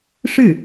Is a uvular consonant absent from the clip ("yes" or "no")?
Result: yes